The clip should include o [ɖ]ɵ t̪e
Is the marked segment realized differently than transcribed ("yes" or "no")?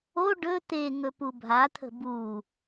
no